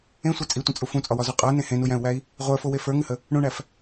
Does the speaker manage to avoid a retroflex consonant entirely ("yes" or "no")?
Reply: no